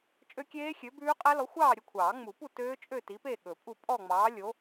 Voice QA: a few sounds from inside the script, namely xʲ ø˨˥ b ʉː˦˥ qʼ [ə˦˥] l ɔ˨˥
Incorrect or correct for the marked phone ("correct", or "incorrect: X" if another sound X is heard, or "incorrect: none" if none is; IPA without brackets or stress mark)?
incorrect: æ˦˥